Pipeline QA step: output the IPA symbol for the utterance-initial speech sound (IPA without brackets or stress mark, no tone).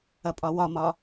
ɐ